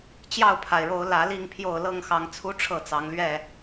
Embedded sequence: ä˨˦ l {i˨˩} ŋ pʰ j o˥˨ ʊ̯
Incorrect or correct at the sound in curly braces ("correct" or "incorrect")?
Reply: incorrect